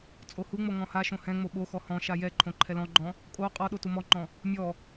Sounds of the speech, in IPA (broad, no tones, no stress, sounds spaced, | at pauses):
t͡sʼ o h u ŋ͡m o ŋ ɔ̃ h a ʃ õ h ɛ̃ ŋ͡m o ɓ o x ɔ h ɔ̃ ʃ a j ɛ ǃʰ õ ǃʰ ɛ l ɔ̃ ɡ͡ǃ ɔ̃ | kʼ o qʼ ɔ ɗ o t u m ɔ ŋ͡ǃ ɔ̃ | mʲ ɔ